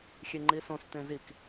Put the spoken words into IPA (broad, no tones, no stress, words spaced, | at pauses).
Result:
xʲeŋ͡ǃisõs t̪ẽzik